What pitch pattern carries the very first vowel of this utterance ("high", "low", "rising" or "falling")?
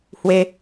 high